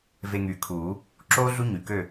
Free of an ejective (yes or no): yes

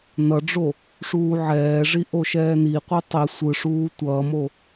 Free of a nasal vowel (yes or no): yes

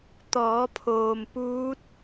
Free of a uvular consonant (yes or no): yes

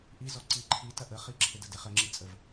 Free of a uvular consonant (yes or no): no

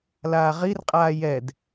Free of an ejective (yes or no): no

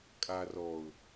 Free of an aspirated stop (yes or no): yes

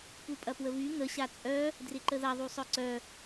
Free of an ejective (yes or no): no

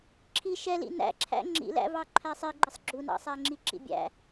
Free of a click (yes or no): no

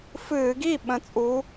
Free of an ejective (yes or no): no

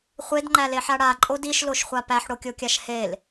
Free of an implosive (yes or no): yes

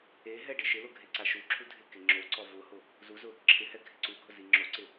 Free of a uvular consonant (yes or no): yes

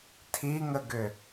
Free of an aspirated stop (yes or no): no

